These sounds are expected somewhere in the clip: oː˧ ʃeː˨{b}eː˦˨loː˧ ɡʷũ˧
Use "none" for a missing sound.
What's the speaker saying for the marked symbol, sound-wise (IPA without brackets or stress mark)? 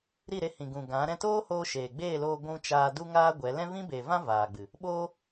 ɡ͡b